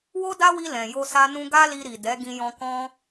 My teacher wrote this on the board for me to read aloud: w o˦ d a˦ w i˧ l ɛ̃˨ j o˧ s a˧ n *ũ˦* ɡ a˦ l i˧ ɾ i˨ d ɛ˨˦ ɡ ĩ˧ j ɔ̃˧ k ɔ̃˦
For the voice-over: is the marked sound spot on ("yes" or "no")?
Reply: no